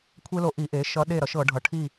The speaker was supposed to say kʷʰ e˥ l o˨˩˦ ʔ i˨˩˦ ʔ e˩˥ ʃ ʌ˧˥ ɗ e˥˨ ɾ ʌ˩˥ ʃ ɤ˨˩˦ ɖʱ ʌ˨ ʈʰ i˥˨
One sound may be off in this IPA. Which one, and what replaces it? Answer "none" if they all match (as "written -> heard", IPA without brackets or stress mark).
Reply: o˨˩˦ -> o˧˥